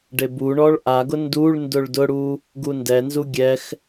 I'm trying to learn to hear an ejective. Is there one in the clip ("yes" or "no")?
no